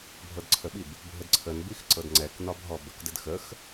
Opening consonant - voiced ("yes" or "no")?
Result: yes